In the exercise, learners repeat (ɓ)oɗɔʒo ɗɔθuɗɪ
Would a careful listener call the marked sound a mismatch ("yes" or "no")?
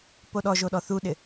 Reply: yes